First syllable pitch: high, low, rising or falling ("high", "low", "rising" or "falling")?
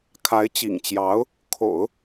rising